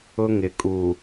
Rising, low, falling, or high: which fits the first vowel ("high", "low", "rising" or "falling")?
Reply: high